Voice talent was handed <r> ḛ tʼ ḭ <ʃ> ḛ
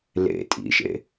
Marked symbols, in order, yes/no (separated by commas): no, yes